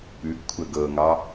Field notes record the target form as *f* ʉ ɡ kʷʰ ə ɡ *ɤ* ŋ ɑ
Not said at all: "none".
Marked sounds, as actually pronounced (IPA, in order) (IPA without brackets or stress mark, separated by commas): p, ɤ